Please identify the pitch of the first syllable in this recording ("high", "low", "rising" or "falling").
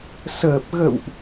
low